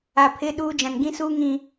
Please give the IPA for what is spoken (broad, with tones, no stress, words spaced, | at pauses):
a˨ pʰɪ˦ɗuː˦ d͡ʒã˨nɡĩ˦suː˦ŋĩ˨